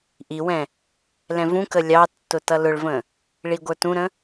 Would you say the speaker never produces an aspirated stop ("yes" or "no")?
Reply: yes